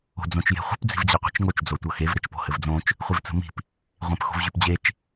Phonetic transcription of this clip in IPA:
o̤ d͡z õ t͡ʃ j e̤ χʷ ə̤ p d͡z i̤ v d͡ʑ ɤ qʷ i̤ t͡ʃ ŋ o t͡ʃ d͡z o tʷ ɤ x e v ɾ ɘ t͡ʃ p o̤ h ɘ v d͡z õ t͡ʃ | χʷ i v t͡s ə̤ m i̤ p | ʁʷ ẽ p x o̤ v ʑ y p d͡ʑ e t͡ʃ

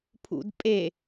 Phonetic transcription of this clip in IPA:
pʰ ṵ d pʼ e

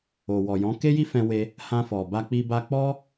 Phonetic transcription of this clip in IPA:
o˨ w ɔ˨ j ɔ̃˨˦ k e˦ j i˦ f ɛ̃˧ w e˧ | h ã˧ f ɔ˨ b a˧ k͡p i˧ b a˧ k͡p ɔ˦

